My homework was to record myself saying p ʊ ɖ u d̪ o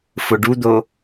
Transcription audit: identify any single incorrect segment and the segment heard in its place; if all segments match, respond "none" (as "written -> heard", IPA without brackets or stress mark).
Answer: p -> f